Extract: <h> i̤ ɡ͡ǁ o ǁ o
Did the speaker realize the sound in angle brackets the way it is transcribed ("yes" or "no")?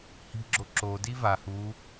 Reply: yes